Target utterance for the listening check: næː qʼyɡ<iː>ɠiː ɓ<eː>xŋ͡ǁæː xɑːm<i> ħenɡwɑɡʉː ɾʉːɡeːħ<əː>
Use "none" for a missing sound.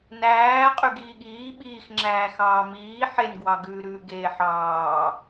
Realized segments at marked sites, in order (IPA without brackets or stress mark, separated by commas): iː, iː, iː, ɑː